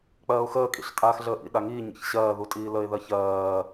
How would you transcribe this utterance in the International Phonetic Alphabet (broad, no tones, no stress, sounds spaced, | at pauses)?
k͡p ɜː ʊ̯ x əː kʼ ḭ ɬ tʼ aː x ɮ əː ʔ ḭ ɗ a ŋ iː ɲ ḭ ç ɕ ɜː ð u tʼ iː l ə ɪ̯ ð ɜ ç ɜː